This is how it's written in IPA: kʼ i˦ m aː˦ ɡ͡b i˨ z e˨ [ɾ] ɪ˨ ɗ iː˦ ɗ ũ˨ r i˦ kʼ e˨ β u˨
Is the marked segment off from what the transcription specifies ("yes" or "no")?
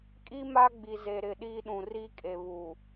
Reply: no